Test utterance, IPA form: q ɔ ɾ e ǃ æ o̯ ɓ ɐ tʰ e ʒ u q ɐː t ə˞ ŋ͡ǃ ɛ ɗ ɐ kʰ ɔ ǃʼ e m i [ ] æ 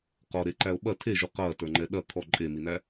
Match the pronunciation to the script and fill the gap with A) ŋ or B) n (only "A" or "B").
B